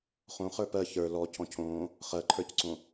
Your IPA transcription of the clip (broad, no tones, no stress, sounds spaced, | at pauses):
χ õ χ ə˞ p ɜ ç ə˞ l ɔ cʰ ɔ̃ cʰ õː | χ ɜ ǃʰ ə˞ c ǀ õ